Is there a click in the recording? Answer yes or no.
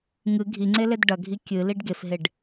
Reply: yes